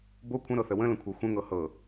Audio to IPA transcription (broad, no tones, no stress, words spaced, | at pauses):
bo kʷʰə̃ɾɤθə wə̃lə̃kʷʰɤ xʷə̃ŋɤ hɤ